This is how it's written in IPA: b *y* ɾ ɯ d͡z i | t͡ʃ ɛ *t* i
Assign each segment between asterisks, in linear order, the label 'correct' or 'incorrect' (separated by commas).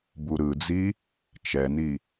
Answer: incorrect, incorrect